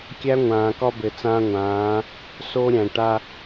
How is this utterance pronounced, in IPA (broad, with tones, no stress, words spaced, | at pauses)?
kʲæ˦ŋʷãː˨kɒ˦ bɘ˨t͡sãː˦ŋʷãː˨˦ | soː˦ɾʲæ̃˨ ʈa˦